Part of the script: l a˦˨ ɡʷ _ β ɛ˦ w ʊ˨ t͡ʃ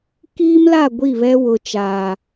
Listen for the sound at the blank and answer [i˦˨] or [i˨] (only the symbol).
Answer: i˦˨